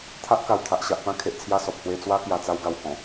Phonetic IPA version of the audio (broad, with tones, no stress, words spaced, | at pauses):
t̪ʰa˦ʔka˨˩w t̪ʰa˨ʔɕa˨ʔpã˥˧ kʰe˨ʔt͡sʰja˥˧sɔ˨p̚ hwe˧t͡swa˦ kja˨˩t͡sa˧w ɡa˨˩whɔ̃˨˩